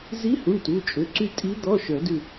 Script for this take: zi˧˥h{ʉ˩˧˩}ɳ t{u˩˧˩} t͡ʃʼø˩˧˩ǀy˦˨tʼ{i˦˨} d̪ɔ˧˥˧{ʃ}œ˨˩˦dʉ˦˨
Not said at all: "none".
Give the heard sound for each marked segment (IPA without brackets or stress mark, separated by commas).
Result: u˩˧˩, u˩˧˩, i˧˥, ʃ